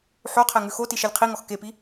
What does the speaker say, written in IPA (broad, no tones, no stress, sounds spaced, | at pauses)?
ħ o qʰ ɛ ŋ ʉ x o t i ʃ e lʲ qʰ i ŋ ɔ x k e p i